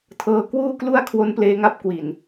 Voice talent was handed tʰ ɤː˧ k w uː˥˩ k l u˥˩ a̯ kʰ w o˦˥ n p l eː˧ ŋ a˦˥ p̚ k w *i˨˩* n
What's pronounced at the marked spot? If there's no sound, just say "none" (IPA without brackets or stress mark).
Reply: i˨˩